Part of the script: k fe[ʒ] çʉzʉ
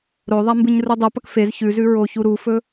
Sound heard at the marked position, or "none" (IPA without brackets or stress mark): z